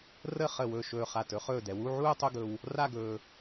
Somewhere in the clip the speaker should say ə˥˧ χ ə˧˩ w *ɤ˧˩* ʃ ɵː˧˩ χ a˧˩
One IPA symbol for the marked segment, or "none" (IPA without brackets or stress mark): ɵ˧˩